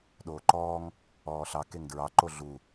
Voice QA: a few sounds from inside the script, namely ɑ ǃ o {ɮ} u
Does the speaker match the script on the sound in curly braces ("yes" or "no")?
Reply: yes